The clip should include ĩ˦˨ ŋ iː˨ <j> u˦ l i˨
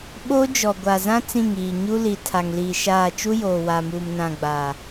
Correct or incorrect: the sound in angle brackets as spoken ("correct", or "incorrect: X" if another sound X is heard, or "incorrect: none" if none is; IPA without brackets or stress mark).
incorrect: ɲ